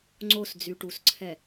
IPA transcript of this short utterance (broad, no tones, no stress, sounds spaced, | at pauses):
ŋ͡ǀ o s d͡z y ʈ u s ǀʰ ɛ